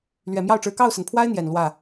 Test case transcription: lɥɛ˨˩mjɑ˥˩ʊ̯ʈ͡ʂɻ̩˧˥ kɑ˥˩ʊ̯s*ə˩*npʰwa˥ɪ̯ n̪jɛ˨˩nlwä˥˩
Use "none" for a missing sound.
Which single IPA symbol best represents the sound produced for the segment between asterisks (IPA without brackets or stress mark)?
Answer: ə˩